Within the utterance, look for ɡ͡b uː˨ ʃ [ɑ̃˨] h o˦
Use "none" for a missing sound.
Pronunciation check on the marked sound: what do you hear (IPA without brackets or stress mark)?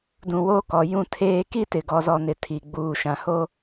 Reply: ã˨